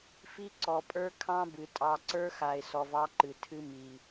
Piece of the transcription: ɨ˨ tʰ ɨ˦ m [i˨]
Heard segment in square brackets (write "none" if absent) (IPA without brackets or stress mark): i˨